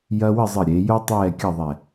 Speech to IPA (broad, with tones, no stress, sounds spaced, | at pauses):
j ɐ˥ w ɘ˥˧ zˤ ɘ˧˩ ɾʲ e˩˧ j o˥ tˤ ɛː˥˧ kʲ ɐ˥˧ ðˤ ɛ˧˩